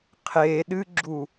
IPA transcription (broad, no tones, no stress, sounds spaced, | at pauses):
qʰ e ɗ ɨ ɡ͡ǁ u